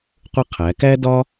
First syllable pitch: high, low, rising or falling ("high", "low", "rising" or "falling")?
high